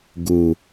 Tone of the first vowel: low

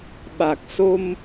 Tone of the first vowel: low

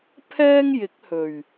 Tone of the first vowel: high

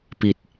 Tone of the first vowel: low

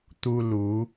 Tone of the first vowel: high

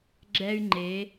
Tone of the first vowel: high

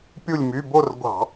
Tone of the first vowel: falling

